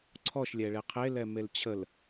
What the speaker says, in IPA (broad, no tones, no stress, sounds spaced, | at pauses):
ǀʰ ɔ ʃ lʲ ɛ ɭ e qʰ e l ɛ m e l t͡ɕʰ ə l